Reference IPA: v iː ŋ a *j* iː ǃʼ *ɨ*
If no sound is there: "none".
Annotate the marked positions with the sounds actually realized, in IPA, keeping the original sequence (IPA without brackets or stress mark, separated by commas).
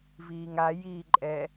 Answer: j, ɛ